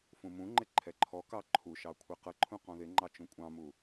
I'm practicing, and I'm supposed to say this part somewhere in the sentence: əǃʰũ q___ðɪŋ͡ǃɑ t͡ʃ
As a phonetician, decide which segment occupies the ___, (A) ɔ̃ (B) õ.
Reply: A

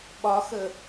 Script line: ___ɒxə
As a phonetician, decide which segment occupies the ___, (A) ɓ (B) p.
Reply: A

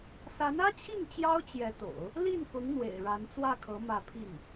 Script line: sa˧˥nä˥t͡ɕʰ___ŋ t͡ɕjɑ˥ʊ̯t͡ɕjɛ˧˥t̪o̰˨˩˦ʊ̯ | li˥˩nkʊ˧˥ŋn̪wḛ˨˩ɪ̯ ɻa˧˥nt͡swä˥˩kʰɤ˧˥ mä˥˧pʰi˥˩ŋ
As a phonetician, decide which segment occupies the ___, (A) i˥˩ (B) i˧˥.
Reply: A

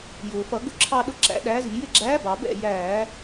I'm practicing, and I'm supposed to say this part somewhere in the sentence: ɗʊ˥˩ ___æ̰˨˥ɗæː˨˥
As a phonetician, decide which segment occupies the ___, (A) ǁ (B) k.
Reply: A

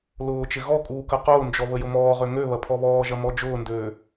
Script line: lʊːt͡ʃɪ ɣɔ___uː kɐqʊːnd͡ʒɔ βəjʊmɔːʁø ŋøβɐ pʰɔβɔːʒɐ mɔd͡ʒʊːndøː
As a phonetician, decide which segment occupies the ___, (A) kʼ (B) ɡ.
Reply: A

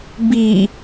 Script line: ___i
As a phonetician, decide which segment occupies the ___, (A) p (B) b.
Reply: B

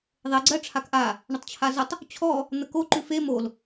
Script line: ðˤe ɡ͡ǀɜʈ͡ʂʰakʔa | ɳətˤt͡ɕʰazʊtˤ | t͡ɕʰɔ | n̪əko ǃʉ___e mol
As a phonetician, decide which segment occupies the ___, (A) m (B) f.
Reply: B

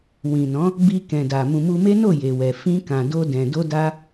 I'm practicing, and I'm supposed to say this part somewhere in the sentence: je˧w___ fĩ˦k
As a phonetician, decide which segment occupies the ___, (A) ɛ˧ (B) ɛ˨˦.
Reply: A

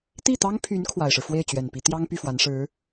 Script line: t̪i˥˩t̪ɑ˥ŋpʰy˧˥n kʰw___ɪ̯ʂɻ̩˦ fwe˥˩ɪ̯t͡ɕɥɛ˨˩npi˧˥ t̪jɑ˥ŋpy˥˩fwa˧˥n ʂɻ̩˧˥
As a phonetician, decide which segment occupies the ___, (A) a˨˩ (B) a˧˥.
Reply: A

